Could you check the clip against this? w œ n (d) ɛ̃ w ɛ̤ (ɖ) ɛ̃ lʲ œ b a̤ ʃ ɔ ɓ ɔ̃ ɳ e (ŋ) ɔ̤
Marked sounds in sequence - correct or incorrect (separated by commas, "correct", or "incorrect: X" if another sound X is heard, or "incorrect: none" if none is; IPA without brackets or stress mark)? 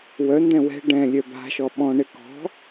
correct, correct, incorrect: k